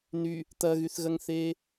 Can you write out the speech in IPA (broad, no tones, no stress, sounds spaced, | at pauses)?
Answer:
n y | t̪ ɐ ɣ y θ ɣ ɐ ŋ θ eː